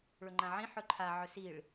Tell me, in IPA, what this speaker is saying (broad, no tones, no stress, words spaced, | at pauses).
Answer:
ɭɵŋ͡ǃãʕĩ ħɵǃʰa ʕɵsiɭ